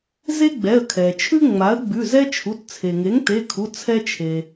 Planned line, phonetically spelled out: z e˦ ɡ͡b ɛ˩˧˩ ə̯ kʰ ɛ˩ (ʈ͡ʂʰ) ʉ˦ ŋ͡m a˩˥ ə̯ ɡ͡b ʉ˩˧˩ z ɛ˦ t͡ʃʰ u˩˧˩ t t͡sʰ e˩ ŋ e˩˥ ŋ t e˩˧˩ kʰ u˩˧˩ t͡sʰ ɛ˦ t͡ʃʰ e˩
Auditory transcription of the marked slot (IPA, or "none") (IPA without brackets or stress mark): t͡ʃʰ